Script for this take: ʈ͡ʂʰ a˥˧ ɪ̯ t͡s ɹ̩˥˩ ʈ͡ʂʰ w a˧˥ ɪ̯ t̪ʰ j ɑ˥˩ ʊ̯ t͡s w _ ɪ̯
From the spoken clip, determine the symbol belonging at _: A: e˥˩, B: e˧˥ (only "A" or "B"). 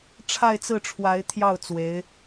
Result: B